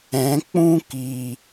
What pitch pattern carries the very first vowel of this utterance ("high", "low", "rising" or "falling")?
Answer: rising